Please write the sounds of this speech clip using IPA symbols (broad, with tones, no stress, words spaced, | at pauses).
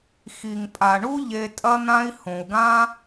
xi˨ŋ pʼa˨ɳu˦ ʎe˧tʼɐ˦n̪ã˦i̯ hõ˨u̯ɡã˦